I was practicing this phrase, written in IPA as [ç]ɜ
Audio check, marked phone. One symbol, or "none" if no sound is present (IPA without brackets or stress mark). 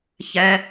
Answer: ç